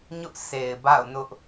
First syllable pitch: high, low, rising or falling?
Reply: high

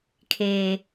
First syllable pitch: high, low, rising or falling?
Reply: low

